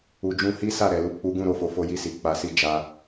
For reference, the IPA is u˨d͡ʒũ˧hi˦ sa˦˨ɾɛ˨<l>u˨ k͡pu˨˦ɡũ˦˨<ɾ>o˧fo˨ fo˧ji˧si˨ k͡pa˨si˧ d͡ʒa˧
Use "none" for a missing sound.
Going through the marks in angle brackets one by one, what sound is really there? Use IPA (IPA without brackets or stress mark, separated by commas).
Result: l, ɾ